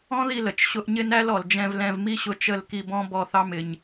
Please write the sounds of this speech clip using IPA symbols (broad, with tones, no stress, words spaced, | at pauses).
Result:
ɔ̃˦ði˧lə˨t͡ʃ ɕʊ˧ʔɲɪ˦næ˦lɔ˨l d͡ʒɛ̃˧v lɛ̃˧vmi˦ɕʊ˧ t͡ʃə˦˨lki˧bɔ̃˦ bɔ˦˨θɑ˦mɪ˧ɲ